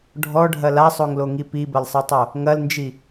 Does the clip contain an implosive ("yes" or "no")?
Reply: no